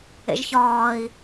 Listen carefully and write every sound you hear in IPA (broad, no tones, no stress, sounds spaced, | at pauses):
ḛ ʒ ç ɒː i̯